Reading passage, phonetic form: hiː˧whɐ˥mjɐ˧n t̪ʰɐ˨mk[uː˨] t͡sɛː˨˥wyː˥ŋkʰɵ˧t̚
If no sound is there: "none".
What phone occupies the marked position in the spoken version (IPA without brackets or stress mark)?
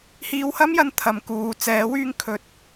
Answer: uː˨